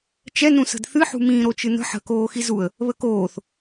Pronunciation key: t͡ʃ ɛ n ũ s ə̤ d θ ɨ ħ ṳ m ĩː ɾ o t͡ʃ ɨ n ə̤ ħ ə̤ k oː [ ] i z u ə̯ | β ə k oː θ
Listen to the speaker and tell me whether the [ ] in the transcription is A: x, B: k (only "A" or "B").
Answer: A